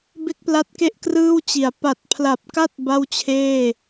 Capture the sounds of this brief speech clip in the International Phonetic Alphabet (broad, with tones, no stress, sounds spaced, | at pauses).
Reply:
b e˥˩ k̚ p l a˦˥ t̚ k e˥˩ ʔ k r ɯː˥˩ w t͡ɕ i˩˦ a̯ p a˨˩ t̚ pʰ l a˨˩ p̚ k a˥˩ t̚ b a˥˩ w t͡ɕʰ eː˥˩